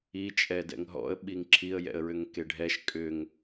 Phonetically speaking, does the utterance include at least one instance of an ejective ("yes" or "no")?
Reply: yes